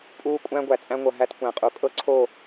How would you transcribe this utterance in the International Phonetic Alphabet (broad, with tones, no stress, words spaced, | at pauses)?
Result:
pʼuː˦ kʷʼæ̃˦ɡʷæ˨t͡sʼæ̃˦ŋʷɤ˨ ɦæ˦tkʷæ̃˨qʼu˨ kʼɤ˦ǀʰo˦˨